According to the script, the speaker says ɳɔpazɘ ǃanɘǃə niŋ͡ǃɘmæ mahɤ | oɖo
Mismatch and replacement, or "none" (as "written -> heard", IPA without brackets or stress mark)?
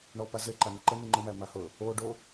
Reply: none